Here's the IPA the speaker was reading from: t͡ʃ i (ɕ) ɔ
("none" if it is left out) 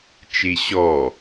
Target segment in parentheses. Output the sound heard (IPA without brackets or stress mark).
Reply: ɕ